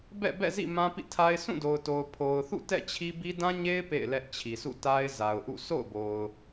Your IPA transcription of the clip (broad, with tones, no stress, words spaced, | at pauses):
bɛ̰˦˨bɛ̰˦˨zḭ˦˨ mã˦pḭ˦˨tʰa˦ɪ̯ sũ˦˨do˨ʊ̯to˨ʊ̯ pʰo˨ʊ̯θṵ˦˨ tɛ̰˦˨t͡ɕʰi˦bi˦ dã˦ɲe˦ɪ̯ pḛ˦˨ɪ̯lɛ˦ʔt͡ɕʰi˨ sṵ˦˨ta˦ɪ̯za˨ʊ̯ʔṵ˦˨ sʰo̰˦˨ʊ̯bo˨ʊ̯